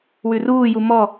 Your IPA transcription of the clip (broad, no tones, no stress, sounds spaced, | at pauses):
w ʉ r uː j u m ɔ